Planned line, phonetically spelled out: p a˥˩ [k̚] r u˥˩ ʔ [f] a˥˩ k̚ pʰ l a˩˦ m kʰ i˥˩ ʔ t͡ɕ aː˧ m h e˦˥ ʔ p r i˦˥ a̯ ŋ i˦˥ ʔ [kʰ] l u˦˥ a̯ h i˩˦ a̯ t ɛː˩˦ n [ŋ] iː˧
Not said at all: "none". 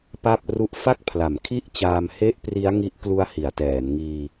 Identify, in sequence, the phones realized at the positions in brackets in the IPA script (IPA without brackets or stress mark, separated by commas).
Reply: p̚, f, k, ŋ